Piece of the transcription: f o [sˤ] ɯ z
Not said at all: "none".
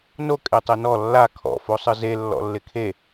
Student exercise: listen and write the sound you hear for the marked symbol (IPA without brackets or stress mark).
sˤ